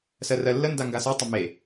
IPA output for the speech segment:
sɜrɜlːənda ŋɡasɜtˤə me

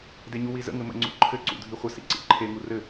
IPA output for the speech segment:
deɲuwizə̰ ŋɘmə̰ ŋ͡ǀṵǃʰɘ ǀṵdʱiχʷə sḭǀḭǃʰe ŋurɘ

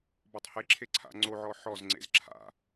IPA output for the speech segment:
bɔtˤheǁʰe ǀʰa̰ŋ͡ǀoʕɔ ħɔzŋ͡ǀḛz ǁʰa̰

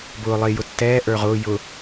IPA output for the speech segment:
bʊː lˠɪː jʊtːɛː ʔə˞ʁʊː jʊ

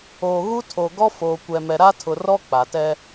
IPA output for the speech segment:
oː˨ɣu˦tʰo˨ ɡɔ˦ foː˨kʷɛ˨mɛ˨ ɾa˦tʰʊ˨rɔ˦ k͡pa˨tɛ˦

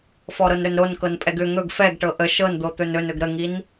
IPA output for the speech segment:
fɔɾɤnɾɵnɾon kɤnpʼɛɡʏ ŋɵɡ fɛɡʈɤ ʔə ʃɤnd̪ot̪ɵn ɵnɵɡ ɾəŋin

